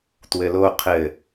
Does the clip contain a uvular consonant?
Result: yes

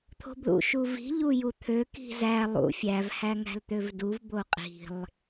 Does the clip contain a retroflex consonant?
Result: no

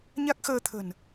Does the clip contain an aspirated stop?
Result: yes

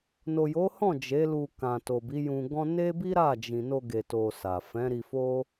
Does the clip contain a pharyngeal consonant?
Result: no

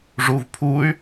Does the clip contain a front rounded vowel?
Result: yes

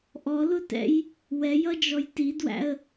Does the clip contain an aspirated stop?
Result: no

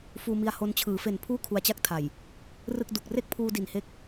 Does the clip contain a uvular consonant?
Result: no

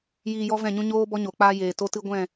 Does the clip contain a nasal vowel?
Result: yes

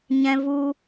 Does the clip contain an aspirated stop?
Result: no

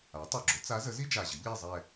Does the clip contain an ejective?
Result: no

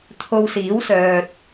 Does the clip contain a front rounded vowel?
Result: yes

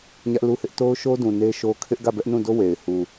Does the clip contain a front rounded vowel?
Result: no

